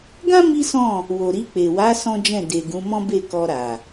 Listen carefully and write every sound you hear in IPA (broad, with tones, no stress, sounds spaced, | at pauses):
ɡ ã˦ m i˦ s ɔ̃˦˨ | w o˨ ɾ i˧ k͡p e˨ w a˨˦ s ɔ̃˦ d͡ʒ ɛ̃˦˨ d e˨ ɡ ũ˨˦ m ɔ̃˦ b e˦˨ k ɔ˧ ɾ a˨